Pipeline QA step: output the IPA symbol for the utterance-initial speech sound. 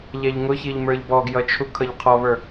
ʎ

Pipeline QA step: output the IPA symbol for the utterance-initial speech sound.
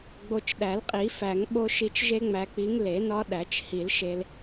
ɡ͡b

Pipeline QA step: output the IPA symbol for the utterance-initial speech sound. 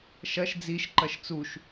ʃ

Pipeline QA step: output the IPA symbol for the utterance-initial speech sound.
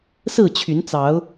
s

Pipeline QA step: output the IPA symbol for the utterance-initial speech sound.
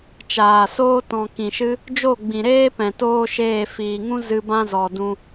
t͡ʃ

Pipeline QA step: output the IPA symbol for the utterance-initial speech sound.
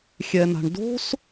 xʲ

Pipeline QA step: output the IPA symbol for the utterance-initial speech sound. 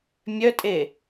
mʲ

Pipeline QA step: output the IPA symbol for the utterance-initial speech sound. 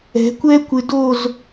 ɛ̤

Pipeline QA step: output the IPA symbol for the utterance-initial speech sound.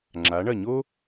ŋ͡ǁ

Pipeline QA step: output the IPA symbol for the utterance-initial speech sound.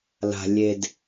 l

